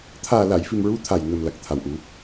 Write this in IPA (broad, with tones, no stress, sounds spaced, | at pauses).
t̪ʰ aː˨˩ l a˨˩˨ j f i˨˩ m ɹ u˧˥ t̪ʰ a˨˩ j n ə˨˩ m l a˨˩ k̚ t̪ʰ a˨˩ w ʔ u˨˩˦